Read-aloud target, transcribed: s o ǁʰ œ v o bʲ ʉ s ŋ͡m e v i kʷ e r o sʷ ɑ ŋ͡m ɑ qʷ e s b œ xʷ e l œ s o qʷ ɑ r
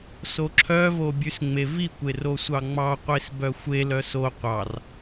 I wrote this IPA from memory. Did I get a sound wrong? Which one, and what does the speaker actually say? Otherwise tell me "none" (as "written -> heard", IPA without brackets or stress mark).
none